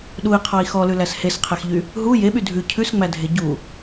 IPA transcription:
ɗ u i̯ qʰ ɔ i̯ x ɔ l ʉ l æ s h e s qʰ ɛ x ʎ y | ɦ u j e ɓ y dʱ ʉ cʰ ʉ s ŋ͡m æ dʱ e ɟ u

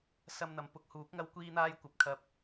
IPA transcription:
s ɐ˧ m n̪ ɐ˨˧ m p ʊ˧ k̚ h uː˨˥ k̚ ŋ ɐ˥ w kʷ iː˥ n̪ aː˥ j kʷ ɐ˨˥ p̚ kʰ ɐ˨ p̚

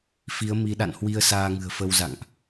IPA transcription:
f i˨˦ ə̯ m i˨˦ ɗ a̰˧˨ n h w i˧ ə̯ s aː˧ ŋ ɨ̤˨˩ ə̯ f ə˧ w z a̰˧˨ ŋ ʔ

